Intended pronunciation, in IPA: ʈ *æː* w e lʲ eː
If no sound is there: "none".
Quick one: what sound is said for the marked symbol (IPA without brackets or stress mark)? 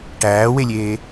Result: æː